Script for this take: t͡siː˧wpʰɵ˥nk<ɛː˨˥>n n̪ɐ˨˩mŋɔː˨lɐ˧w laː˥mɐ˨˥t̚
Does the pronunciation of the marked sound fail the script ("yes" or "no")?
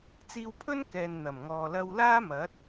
yes